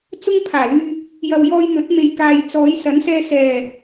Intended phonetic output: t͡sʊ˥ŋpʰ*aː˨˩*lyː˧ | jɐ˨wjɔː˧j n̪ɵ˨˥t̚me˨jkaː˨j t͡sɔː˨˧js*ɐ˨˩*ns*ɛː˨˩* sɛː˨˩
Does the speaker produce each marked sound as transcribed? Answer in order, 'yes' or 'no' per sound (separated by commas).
yes, no, no